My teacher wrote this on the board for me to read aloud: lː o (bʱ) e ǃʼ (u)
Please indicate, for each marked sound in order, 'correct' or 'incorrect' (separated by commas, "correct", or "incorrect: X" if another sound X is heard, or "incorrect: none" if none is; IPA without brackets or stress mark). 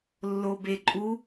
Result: incorrect: b, correct